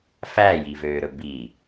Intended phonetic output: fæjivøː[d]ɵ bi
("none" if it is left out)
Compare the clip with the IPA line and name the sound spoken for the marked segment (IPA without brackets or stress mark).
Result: ɾ